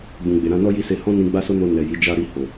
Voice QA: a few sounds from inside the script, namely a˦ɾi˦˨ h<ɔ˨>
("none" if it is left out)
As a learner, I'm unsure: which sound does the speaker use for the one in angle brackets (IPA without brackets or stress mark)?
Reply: o˨